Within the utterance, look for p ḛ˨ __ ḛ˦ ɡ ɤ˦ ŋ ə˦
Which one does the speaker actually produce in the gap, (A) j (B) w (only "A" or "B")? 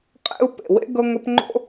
B